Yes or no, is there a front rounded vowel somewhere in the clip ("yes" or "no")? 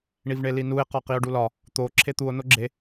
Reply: no